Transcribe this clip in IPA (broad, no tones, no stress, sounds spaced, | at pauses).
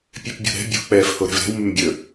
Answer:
pʲ e p bʲ o̤ ɾ ɛ̤ bʲ o̤ k͡p ɛː f h o ɾ ɛ̤ v ɾ ɛ̤ w m ʉ m bʲ ɵ